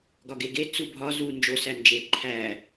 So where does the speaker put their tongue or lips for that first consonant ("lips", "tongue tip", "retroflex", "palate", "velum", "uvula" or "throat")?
velum